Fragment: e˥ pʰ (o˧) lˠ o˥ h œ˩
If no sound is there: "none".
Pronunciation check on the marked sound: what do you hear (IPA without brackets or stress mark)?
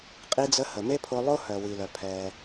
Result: o˧